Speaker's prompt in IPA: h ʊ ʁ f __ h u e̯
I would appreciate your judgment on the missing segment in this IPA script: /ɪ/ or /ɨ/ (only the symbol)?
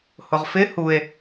ɪ